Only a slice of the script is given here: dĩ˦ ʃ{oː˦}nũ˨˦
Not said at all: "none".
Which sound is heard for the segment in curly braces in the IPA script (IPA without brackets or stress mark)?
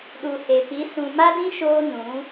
oː˦